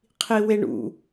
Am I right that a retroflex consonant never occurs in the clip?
no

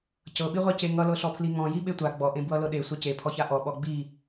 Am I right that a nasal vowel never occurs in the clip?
no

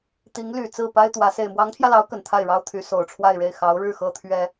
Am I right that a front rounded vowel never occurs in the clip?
no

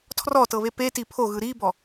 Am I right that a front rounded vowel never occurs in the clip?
yes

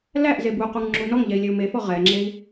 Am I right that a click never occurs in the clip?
no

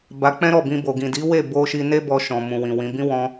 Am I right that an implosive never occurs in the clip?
yes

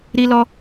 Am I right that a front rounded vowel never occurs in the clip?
yes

